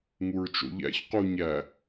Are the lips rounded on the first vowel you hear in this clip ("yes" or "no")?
yes